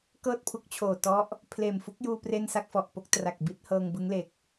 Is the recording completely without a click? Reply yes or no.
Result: yes